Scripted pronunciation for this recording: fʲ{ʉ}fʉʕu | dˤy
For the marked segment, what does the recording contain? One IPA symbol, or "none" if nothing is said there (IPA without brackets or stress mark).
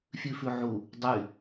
ʉ